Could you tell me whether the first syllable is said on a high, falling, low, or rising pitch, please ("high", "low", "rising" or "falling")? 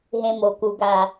low